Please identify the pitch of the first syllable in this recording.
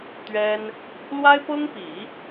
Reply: high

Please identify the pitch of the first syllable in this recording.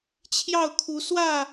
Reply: falling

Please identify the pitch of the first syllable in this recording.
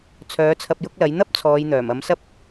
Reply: rising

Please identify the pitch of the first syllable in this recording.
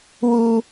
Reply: low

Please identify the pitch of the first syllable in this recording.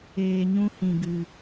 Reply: low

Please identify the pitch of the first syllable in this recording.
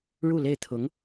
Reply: falling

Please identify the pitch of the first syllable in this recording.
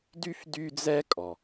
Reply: high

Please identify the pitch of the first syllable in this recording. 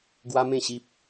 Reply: high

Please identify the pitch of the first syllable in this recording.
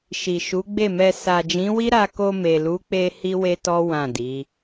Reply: low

